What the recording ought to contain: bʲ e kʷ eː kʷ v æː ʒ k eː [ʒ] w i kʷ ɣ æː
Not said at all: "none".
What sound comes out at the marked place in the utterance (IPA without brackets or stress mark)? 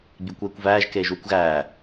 ʒ